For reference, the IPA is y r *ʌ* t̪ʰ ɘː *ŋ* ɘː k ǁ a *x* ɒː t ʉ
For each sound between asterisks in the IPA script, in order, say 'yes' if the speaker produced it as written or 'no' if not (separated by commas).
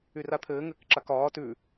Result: no, yes, no